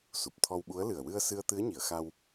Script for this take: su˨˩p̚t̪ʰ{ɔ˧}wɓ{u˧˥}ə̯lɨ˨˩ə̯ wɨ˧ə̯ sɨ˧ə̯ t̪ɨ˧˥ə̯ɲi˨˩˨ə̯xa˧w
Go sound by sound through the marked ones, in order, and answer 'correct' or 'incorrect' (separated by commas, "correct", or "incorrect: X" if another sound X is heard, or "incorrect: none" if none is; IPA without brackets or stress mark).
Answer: correct, correct